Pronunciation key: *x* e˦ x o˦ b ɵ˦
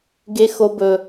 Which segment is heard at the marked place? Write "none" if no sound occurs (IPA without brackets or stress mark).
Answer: ɡ